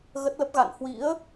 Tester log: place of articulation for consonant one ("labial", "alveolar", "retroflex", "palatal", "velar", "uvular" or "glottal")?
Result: velar